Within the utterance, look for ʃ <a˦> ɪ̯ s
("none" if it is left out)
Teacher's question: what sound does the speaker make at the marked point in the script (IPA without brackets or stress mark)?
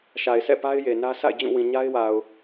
a˨